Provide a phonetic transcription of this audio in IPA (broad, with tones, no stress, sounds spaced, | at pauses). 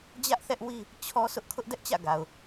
d͡ʑ ä˦ ʔ θ ɛ˦ ʔ w i˦ | t͡ɕʰ ɔ˦ s ʊ˦ ʔ kʰ ʊ˦ ʔ d ɛ˦ ʔ t͡ɕ ä̰˦˨ ɡ a˨ ʊ̯